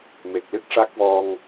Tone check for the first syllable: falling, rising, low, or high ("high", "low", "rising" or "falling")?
low